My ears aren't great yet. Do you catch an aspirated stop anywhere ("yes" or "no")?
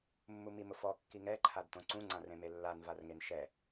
yes